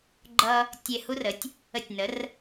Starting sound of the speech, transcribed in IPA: ɡ͡ǃ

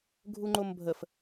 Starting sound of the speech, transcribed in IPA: ɡʱ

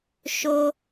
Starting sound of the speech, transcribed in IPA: ʃ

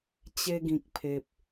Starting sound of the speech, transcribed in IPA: t͡ɕ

